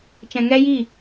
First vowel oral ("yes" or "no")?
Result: no